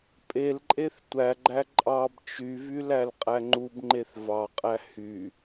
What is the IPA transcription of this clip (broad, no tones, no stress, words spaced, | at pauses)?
pʼelǃʼeθ tʷæɡ͡ǃæ ǃʼɑb t͡ʃyvy lælqʼæŋ͡ǃubŋ͡ǃeθ vɑqʼæ hy